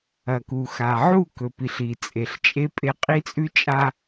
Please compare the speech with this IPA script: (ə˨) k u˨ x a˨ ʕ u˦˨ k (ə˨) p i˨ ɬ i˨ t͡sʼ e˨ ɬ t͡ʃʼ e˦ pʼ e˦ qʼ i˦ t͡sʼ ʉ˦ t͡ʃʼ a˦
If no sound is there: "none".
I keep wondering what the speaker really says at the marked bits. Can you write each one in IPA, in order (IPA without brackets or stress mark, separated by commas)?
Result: ɐ˨, ɵ˨